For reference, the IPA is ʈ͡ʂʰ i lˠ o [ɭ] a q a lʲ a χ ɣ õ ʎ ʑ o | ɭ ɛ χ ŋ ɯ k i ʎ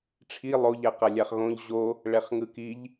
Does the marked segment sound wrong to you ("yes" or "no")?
yes